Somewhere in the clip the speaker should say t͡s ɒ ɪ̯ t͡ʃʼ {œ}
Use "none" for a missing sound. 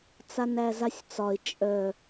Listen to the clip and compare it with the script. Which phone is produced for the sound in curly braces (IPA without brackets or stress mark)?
œ